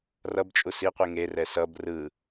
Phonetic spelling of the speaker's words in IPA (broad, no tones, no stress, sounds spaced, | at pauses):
r ʌ b t͡ʃʼ u s i qʷ i ŋ e r ɛ s ʌ b r ɯ